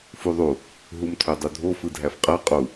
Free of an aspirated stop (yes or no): no